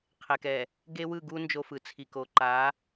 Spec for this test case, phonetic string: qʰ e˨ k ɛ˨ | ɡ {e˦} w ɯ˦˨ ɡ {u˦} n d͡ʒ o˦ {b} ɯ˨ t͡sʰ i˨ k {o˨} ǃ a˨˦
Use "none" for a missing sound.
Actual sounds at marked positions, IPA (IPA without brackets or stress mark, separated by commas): e˦, u˦, f, o˨